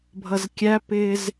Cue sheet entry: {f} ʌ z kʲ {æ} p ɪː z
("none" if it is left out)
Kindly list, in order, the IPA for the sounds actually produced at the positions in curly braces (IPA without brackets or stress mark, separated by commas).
bʱ, æ